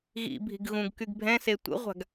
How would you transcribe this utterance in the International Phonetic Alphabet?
ɣḭbʱi̤ɡ ɣũɡkyɡ bʱɛ̃se tʷə̰ʁʷa̤ɡ

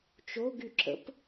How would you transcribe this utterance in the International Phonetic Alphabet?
t͡ʃoɡ yǁə̰p

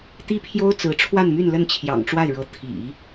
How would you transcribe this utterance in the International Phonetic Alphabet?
t̪i˥pʰjo˥ʊ̯ t͡sɹ̩˧˥ʈ͡ʂʰwa˥˧nmy˥˧n lə˥˩nt͡ɕʰjɑ̰˨˩ŋʈ͡ʂwa˥˩ɪ̯ɻɤ˧˥ t̪ʰḭ˨˩˦

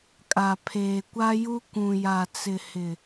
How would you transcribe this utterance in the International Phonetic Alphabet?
kʼa˨ pʰeː˨kʷa˦ju˦ kʷũ˨ja˨t͡sɪ˨hɪ˨

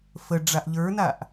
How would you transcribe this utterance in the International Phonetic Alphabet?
fəɖ͡ʐaʔ ʎə˞naʔ

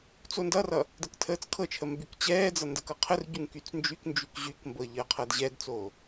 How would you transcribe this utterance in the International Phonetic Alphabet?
t͡sondʌrʌ | dəktʰəːt͡skʰɤt͡ʃʰə mbykt͡ɕɛːd͡zʌ ndəkɤqʰərɟuŋ kyt͡snd͡ʒyknd͡ʒyk ʑykmbɤ ʎəːqʰɤdʑɛdt͡soː

